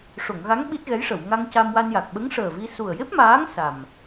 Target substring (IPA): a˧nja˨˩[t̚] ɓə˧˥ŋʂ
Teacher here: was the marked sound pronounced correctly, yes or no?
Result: no